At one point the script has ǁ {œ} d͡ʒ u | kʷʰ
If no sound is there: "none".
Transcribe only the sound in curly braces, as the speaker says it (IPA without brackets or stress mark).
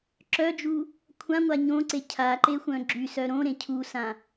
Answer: œ